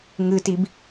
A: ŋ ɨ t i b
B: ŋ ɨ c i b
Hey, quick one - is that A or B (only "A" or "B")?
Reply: A